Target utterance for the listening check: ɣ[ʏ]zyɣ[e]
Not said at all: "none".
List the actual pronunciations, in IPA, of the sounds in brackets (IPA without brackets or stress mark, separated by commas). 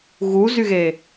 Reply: u, e